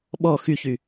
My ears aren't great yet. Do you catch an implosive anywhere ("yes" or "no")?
yes